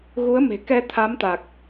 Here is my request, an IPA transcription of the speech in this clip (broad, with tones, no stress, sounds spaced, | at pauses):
ɣ u˨˦ ə̯ m e̤˨˩ k ɛ˧ t̪ʰ a˨˦ m t̪ a˨˩ k̚